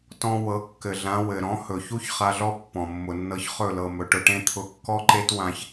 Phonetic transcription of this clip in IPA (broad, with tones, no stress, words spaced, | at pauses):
tɔ̃˧ wɤ˨˦kːɘ˨ɮã˨˦ wɘ˨ ɾɔ̃˨˦ hɵ˨ çu˦ç χa˧ɮɔ˦ pːɔ̃˨mːʊ˨nːɤ˧ç χɵ˦˨lɤ˨mɵ˨ ʈʊ˧ʈẽ˦ t̪ʰʊ˧kːɔ˦ǃe˦twã˧ç